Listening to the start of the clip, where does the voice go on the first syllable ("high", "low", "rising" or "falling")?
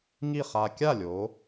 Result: falling